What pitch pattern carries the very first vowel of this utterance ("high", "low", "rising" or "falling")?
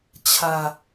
low